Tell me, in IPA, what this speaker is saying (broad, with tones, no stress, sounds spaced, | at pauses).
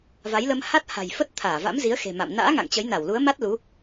v a˨˦ j l ə˧ m h a˦˥ t̚ h a̤˨˩ j f ə˦˥ t̚ t̪ʰ aː˧˩ v a̰˧˥ m z i˨˦ ə̯ x e̤˨˩ m a̰˧˨ m n a̰ː˧˥ ŋ a̰˧˨ ŋ t͡ɕ ə˨˦ j n a˧˩ w l u˨˦ ə̯ m a˦˥ t̚ l u˨˦